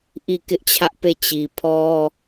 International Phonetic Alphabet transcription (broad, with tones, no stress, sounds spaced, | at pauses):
ʔ i˦˨ k ɪ˦ ʔ t͡ɕʰ ä˦ ʔ p e˦˨ t͡ɕ i˨ pʰ ɔ˦